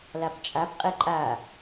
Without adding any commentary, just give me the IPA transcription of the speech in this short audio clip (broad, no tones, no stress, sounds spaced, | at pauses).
l a p t͡ʃʼ a p qʼ ɛ ǃʼ a